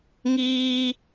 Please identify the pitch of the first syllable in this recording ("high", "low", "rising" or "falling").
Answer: high